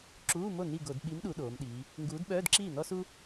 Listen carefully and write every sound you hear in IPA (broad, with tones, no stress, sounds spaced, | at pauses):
ǁ uː˧˥˧ m o˥˩ n i˥˩ ɡ o˧˩˧ d ɓ i˨˥ m ɗ u˩˧ ɗ oː˩˧ m ɗ iː˩˧ | ŋ ɡ uː˨˥ d ɓ œː˧˥˧ d ǁ iː˥˩ n ɔ˥ s u˥